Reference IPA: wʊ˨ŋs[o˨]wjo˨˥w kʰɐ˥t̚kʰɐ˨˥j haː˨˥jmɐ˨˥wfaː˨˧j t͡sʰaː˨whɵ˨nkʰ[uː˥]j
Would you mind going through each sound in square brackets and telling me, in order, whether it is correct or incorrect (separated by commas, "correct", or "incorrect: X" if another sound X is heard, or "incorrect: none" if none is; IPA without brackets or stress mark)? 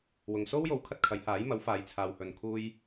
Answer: incorrect: o˥, incorrect: uː˧